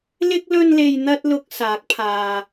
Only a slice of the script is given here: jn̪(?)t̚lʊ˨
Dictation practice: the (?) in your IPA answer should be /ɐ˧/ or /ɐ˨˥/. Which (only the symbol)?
ɐ˧